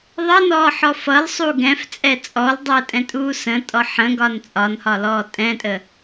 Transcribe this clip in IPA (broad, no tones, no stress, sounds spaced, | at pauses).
ðˤ ʌ n ɔː ħ ɔ f ʌ l sˤ u ɡ ɛ̃ f t͡sʼ ɛ t͡sʼ ɔ l dˤ əː tʼ ɛ̃ tʼ uː s ə̃ tʼ ɔ ħ ə̃ ɡ ɒ n t͡sʼ ɒ n h ɒ l ɔː tʼ ɛ̃ tʼ ə